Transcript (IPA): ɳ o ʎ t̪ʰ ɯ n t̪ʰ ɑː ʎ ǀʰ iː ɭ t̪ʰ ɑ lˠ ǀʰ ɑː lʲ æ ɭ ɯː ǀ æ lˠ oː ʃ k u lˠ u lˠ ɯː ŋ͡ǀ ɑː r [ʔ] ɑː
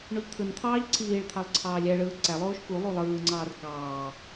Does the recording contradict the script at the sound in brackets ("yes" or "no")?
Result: yes